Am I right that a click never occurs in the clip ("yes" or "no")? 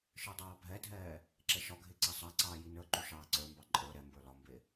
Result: no